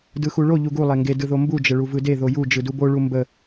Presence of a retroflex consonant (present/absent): present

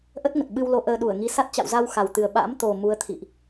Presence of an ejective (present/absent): absent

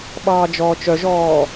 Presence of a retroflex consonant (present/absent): absent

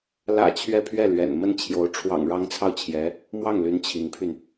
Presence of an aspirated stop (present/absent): present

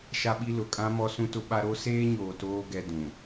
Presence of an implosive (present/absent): present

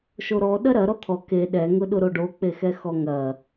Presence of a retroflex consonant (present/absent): present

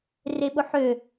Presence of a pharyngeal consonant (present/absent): present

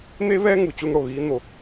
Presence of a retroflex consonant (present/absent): present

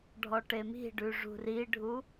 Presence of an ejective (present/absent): absent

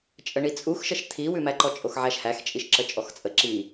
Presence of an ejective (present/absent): present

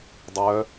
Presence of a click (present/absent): absent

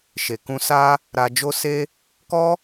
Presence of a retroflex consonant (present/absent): absent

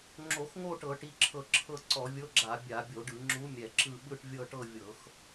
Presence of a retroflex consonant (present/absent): present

